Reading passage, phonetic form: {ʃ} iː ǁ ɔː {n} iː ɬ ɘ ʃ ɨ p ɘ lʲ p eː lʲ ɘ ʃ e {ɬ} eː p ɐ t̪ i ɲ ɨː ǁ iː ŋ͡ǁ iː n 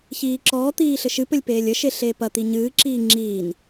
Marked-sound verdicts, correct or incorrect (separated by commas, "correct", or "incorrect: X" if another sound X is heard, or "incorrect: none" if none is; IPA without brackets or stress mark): incorrect: ç, incorrect: t̪, correct